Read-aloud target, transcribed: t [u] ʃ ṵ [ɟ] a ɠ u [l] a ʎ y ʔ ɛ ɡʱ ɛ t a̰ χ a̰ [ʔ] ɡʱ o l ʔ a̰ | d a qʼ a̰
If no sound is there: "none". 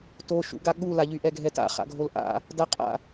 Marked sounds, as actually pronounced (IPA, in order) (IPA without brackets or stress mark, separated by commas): o, ɡ, l, none